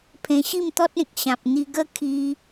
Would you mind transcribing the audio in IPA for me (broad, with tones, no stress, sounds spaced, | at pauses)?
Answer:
pʰ ẽ˧ ɕ i˥˧ m t̪ ɔ˦ t̚ ẽ˨ k̚ ɕ ã˨ p̚ n̪ i˧ ɡ ə˧ kʰ i˧